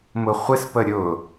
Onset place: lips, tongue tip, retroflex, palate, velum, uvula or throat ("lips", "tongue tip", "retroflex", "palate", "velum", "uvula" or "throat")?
lips